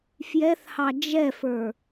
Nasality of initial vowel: oral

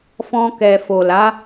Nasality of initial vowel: nasal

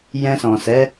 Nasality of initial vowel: nasal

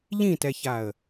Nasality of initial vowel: nasal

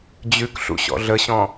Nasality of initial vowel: oral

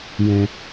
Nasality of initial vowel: nasal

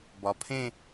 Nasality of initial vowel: oral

